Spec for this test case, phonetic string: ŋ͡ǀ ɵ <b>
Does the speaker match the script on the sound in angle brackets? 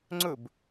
yes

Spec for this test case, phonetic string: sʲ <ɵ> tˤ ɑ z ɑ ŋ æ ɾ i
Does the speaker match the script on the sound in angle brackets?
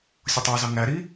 no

